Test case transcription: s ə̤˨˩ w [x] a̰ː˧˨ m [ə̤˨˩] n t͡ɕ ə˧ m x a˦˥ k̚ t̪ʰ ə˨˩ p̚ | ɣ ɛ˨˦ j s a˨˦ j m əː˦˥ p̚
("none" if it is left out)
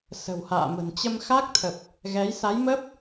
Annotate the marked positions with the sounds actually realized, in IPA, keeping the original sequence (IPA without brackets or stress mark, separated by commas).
h, ə̤˨˩